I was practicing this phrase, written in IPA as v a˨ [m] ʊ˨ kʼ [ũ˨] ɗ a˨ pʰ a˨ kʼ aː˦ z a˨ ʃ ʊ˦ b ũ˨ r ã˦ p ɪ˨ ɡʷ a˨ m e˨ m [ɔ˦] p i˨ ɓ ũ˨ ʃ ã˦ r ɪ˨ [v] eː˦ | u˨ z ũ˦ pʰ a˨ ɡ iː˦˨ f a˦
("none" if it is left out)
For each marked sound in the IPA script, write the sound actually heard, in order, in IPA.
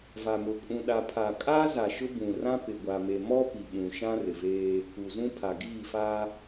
m, ũ˨, ɔ˦, v

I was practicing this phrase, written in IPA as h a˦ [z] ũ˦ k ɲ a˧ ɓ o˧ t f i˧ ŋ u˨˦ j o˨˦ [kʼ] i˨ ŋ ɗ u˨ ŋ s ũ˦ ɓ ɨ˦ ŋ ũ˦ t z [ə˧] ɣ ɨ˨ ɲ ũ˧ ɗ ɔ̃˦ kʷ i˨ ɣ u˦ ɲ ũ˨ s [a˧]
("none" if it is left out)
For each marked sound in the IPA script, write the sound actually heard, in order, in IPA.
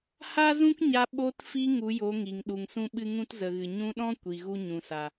z, ŋ, ə˨, a˨

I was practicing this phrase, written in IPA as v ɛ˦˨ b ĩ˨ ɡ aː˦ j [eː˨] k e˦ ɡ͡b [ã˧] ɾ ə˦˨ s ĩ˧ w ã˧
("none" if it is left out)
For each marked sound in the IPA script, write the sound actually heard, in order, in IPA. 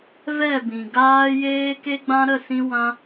eː˦, ã˦

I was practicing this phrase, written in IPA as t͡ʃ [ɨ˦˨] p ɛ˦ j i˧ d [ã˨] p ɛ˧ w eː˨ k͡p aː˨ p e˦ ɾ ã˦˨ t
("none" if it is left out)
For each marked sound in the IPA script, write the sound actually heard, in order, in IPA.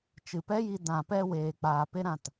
ɨ˨, ã˨

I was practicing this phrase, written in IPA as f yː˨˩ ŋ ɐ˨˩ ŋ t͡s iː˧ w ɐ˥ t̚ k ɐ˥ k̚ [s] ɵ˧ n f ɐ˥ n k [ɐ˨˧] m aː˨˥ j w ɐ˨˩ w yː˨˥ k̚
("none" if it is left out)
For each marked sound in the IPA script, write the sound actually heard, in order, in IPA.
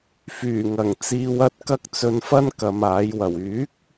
t͡s, ɐ˨˧

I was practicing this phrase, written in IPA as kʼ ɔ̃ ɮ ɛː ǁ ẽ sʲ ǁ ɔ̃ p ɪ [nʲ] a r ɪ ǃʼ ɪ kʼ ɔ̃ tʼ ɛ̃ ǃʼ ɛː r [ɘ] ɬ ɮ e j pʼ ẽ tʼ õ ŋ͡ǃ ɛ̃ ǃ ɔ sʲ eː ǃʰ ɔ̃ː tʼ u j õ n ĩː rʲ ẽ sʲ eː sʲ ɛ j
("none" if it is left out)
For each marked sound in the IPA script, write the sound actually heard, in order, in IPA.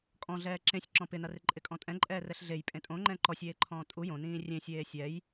n, ɛ

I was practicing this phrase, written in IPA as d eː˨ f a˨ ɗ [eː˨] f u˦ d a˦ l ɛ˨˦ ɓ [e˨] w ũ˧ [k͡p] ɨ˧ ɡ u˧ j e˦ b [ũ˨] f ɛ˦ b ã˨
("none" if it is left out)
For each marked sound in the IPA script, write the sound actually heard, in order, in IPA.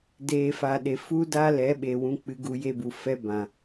e˨, e˨, k͡p, u˨

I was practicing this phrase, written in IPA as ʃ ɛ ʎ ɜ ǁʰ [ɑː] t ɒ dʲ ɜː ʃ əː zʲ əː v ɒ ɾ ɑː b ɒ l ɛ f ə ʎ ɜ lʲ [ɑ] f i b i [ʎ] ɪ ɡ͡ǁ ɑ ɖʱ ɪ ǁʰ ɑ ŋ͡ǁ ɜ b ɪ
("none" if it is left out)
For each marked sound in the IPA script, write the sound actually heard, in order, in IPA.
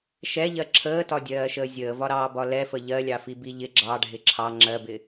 əː, ɑ, ʎ

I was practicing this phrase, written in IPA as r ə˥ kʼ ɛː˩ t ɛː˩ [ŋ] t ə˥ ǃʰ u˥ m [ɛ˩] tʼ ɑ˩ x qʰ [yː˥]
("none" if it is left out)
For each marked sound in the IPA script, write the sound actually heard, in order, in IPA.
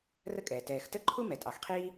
x, ɛ˩, iː˥

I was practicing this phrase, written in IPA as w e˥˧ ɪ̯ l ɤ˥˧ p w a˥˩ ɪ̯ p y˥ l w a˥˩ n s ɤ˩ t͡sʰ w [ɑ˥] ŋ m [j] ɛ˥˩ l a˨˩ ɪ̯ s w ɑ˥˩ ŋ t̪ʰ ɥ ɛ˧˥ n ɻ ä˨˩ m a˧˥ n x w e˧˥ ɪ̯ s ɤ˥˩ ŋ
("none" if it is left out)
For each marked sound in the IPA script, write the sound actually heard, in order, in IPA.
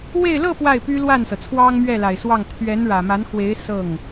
ɑ˥, ɥ

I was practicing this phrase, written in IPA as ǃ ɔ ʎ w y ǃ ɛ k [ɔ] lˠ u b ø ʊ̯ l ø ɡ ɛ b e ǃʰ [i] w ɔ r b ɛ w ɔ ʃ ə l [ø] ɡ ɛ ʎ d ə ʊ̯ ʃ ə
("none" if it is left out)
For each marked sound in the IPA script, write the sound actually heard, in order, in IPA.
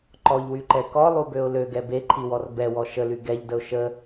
ɔ, i, y

